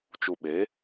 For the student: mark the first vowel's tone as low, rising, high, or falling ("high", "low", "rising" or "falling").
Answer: low